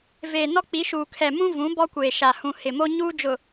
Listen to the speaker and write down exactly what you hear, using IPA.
v eː˨ n ɔ˦ k͡p i˨˦ ʃ uː˨ kʰ ɛ˨ m ũ˦ v ũ˨˦ b ɔ˦ kʷ eː˨ ʃ a˨ h ũ˨ h ɪ˨ m o˦ ɲ uː˦ d͡ʒ ʊ˨

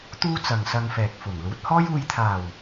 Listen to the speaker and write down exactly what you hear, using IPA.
t̪ uː˥ t͡s ɐ˨ ŋ s ɐ˧ ŋ f ɛː˨ k̚ f ʊ˨˩ ŋ l uː˨˥ t̚ h ɔː˥ j uː˨ j t̪ʰ aː˨˩ w

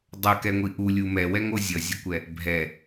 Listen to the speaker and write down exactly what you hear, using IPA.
dˤ ʌ k ɛ ŋʷ i ʔ u lʲ u m ɛ w ɛ ŋ o zʲ ʌ zʲ ə kʷ ɛ | bʱ ɛ

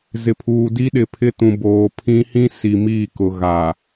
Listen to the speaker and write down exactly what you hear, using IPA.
z ɪ˨ pʰ uː˨ d i˦ ɗ ɪ˨ pʰ ɪ˦ t ũ˨ b oː˨ pʰ ĩ˦ h ĩ˦ s i˨ m iː˦˨ k ʊ˨ ɣ a˨

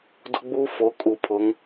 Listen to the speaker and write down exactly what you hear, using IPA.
d ʊ˦ ɡ͡b uː˦ f o˨˦ kʼ u˨ pʰ ʊ˨˦ ŋ

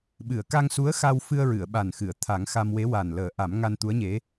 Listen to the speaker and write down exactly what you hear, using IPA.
ɓ ɨ˨˩˨ ə̯ k a˧ ŋ s u˧˥ ə̯ x a˧ w f ɨ˧ ə̯ ɹ ɨ˨˩˨ ə̯ ɓ a˨˩ n x ɨ˨˩˨ ə̯ t̪ʰ a˨˩˦ ŋ x a˧ m w e˧˥ w a˨˩ n l əː˨˩˦ ʔ a˨˩˦ m ŋ a˧ n t̪ u˧˥ ə̯ ɲ e˧˥

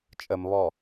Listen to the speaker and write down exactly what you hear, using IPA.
t͡ʃʼ ə m β ɔ

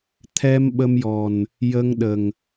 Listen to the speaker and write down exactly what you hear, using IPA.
t̪ʰ ɛ˧ m ɓ ə˧ m j ɔ˨˩ n | j ə˧ ŋ ɗ ə˨˩ ŋ

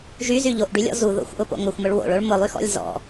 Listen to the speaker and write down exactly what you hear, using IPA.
ʒ y z y ʎ o ʔ ɖ y lʲ ɔ̰ z u ð o̰ xʷ ʔ ʊ p o̰ ŋ ʊ xʷ m ʊ ɭ w o̰ ɭ o ɭ m ʊ lˠ y x ɔ̰ lʲ z ɔ̰

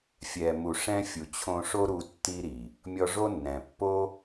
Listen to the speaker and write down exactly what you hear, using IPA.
fʲ ɛ˨ m u˨ ʂ ɛ̃˧ fʲ u˨ t͡ɕʰ õ˧ ʂ o˦ ɾ u˧ tː i˧ ɾ i˨ | mʲ ɔ˧ ʐ o˦ nː ɛ̃˨ pː o˦

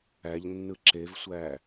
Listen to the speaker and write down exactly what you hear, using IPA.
æ ʎ nː ɯ ǁ e v sʷ æ

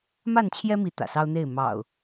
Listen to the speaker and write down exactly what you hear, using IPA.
m a˥˨ n t͡ɕʰ j ɛ˦ m i˨˦ t̪ ä̰˨˩ s ɑ˦ ʊ̯ n̪ e˥˨ ɪ̯ m ɑ̰˨˩ ʊ̯

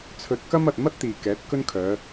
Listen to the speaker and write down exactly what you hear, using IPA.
t͡sʰ ɵ˧ t̚ k ɐ˥ m ɐ˨ t̚ m ɐ˥ t̚ t̪ iː˨ k ɛː˨˥ t̚ k ɵ˥ n kʰ œː˨˧

